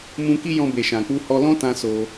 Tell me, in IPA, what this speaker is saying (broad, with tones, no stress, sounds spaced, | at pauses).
m ũ˧ k i˦ j ɔ̃˧ b e˨ ʃ ã˨ k͡p u˧ h ɔ˧ l ɔ̃˦ t ã˧ s o˧